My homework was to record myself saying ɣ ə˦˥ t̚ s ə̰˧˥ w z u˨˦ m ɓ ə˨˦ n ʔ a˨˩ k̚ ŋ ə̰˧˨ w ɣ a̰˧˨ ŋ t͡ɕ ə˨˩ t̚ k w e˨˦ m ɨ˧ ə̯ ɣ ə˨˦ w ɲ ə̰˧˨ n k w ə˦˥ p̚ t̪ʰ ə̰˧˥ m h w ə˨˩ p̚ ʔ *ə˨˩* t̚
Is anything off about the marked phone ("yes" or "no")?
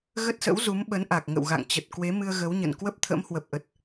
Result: no